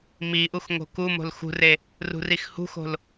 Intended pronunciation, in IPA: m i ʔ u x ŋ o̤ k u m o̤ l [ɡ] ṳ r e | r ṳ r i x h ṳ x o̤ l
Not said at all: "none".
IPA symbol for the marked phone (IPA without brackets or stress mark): x